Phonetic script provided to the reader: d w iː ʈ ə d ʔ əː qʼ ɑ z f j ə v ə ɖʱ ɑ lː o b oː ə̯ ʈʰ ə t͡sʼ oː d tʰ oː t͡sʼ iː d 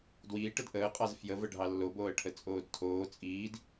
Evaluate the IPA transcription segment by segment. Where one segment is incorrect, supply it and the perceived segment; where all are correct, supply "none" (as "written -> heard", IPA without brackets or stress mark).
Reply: none